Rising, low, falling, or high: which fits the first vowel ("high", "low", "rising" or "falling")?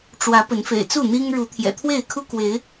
rising